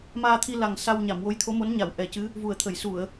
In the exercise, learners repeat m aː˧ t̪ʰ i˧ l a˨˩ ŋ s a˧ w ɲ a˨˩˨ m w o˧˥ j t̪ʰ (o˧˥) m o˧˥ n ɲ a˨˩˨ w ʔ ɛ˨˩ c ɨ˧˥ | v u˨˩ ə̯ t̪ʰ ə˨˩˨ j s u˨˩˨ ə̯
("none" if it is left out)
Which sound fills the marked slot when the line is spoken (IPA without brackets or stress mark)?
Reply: o˧˥